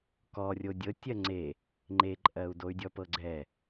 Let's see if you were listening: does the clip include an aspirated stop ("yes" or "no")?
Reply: no